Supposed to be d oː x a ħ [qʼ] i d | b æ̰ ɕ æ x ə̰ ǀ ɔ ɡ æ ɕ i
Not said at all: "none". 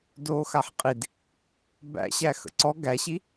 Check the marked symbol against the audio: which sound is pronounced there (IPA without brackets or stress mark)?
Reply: qʼ